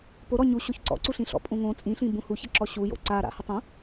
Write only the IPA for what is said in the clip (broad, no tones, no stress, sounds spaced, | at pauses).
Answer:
p o ɾ ɔ ɲ u ɕ o ç ǀ ɔ̰ ǀ u ɬ ĩ ɬ ɔ̰ pʼ ũ ŋ õ t͡sʼ ĩ ɬ ĩ b ũ h u ç ə ǁ ɔ ɕ u j o̰ ǀ a ɾ a̰ h ə tˤ õ